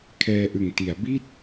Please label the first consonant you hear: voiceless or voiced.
voiceless